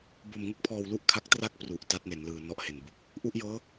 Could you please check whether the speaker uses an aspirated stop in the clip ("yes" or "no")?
yes